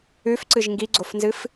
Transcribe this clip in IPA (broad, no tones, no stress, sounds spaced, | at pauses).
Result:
ʉ f ǀ ɨ ʒ ŋ ɡ i ɡ͡ǀ o f n z ɨ f